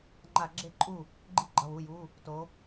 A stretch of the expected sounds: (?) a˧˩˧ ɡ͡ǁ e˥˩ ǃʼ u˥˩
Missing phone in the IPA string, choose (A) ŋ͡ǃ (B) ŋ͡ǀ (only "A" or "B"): A